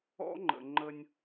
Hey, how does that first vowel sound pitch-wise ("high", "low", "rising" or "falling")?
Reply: high